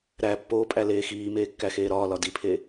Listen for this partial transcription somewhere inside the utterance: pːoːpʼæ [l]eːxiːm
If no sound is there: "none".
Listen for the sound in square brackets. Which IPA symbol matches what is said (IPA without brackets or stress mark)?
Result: l